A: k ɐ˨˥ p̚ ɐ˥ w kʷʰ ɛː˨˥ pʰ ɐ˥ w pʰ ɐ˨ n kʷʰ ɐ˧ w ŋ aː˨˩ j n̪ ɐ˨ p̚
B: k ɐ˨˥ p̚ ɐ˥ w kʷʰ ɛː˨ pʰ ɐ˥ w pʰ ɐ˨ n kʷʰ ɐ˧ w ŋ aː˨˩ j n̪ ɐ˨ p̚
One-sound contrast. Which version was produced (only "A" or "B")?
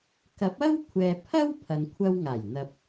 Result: B